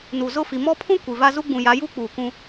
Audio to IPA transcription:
n u˨ z ʊ˦˨ f i˨ m ɔ˦ pʰ ũ˦ kʷ i˨ v a˦ z u˦ ɡ͡b ũ˨ j a˨˦ j uː˦ k͡p uː˨ k ũ˦

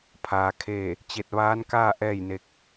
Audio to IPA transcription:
pʰ aː˩ kʰ eː˧˩ | t͡ɕ e˧˩ t̚ ʋ aː˧˥ n k aː˥˨ ʔ ɛː˥˨ j n e˧ k̚

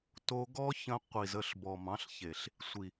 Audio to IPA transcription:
t o˧ ɡ ɔ˦ ç ə̃˧ qʷ i˨ z ə˦˨ ɬ b ɔ˨ m ɑ̃˨˦ ɬ ç e˨ ɬ | sʷ i˨

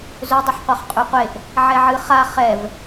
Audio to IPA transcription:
z ɵ dˤ ɵ ħ qʷ a χ qʼ ʉ qʷ e ʔ | ʕ ɛ ʕ ɨ χ a χ ɛ v

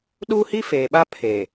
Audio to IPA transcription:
ɗ uː˦ h i˦ f eː˨ ɓ a˦ pʰ e˨

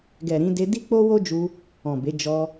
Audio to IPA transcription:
ɡ ɛ˨ ɾ ĩ˧ d e˧ d i˦ k͡p o˦ w o˦ d͡ʒ u˧ | ɔ̃˨ b e˨˦ d͡ʒ ɔ˧

